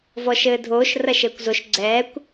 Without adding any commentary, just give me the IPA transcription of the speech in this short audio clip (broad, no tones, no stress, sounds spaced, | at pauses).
v ɔ ʃ ɘː dʱ oː ʃ r ɐ ʃ ɘː kʷ z o ʃ ɡ͡ǀ ɛː kʷ